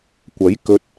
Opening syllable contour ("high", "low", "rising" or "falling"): rising